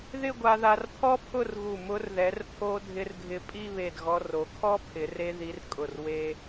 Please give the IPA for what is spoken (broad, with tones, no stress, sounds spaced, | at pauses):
ð ɪ˥˧ ɡʷ a˧ ð a˧ r pʰ ɔ˥ pʰ ʊ˥˧ r ɣ u˧˩ m ʊ˧ r ð ɛ˩˧ r pʰ o˧ dʱ ɪ˧ r ɡʱ ɪ˧˩ pʼ i˥˧ β e˧˩ d ɣ ɔ˧ r o˩˧ kʰ ɔ˥ pʰ ɪ˩˧ r e˧ ð i˧ r kʼ ʊ˧˩ r w e˧